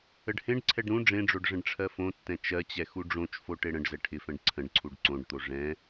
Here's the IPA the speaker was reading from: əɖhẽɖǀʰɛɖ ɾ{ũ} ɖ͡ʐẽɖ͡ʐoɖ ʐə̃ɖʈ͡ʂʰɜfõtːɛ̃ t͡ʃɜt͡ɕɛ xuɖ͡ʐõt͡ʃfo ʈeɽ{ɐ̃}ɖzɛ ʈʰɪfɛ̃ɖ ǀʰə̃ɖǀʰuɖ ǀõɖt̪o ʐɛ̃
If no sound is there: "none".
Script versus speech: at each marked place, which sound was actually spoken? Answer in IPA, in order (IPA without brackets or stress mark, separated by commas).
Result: ũ, ə̃